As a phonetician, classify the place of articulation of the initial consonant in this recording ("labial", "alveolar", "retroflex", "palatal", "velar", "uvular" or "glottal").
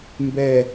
labial